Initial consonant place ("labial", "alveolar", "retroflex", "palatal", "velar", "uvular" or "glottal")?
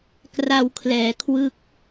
velar